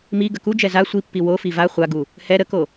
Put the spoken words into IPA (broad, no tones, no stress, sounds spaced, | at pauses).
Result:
m i ɡ ə k u d͡ʒ ɛ z a sʷ i pː i w o f i v a χʷ a ɡ u | h ɛ ɾ ə k o